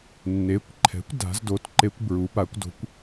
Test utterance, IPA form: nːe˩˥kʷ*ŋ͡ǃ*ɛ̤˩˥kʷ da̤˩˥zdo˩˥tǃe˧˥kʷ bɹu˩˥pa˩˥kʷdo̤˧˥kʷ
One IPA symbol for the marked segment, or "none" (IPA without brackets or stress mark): ǃʰ